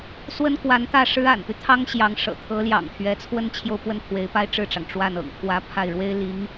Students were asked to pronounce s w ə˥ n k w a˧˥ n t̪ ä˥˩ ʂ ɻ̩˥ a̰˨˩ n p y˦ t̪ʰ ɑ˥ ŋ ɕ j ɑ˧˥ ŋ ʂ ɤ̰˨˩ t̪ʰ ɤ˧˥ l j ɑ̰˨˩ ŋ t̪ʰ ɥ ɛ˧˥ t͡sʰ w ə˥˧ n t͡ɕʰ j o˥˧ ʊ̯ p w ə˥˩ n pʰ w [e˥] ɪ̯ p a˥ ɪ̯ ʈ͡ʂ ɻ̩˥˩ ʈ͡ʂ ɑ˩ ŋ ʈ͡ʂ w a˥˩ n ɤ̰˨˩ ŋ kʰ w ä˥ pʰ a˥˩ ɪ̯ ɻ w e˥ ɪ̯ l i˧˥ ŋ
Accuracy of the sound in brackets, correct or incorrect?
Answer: incorrect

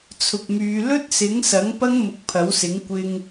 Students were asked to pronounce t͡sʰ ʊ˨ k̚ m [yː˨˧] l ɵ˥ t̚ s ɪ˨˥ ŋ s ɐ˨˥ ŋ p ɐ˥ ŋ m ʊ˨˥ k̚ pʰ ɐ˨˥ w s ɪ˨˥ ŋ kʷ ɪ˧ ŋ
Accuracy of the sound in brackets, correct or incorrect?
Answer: correct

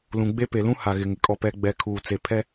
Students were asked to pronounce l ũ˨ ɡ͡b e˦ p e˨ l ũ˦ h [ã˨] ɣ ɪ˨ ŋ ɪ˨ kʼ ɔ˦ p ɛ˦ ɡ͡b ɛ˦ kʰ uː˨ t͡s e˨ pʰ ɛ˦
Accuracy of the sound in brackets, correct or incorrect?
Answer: incorrect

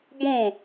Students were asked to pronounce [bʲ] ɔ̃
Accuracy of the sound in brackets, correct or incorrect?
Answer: incorrect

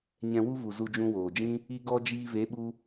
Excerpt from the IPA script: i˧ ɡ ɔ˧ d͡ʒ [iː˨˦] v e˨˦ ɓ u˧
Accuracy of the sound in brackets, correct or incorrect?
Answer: incorrect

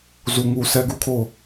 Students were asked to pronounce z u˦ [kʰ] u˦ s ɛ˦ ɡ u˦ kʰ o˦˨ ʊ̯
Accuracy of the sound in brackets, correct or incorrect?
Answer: incorrect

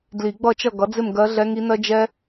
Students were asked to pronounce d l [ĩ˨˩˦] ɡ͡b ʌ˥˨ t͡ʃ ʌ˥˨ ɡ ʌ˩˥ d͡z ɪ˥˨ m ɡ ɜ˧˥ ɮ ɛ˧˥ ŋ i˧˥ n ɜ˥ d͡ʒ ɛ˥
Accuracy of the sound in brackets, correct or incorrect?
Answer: incorrect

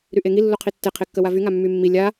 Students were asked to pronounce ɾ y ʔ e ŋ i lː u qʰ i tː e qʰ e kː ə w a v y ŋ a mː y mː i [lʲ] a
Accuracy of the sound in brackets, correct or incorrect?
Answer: correct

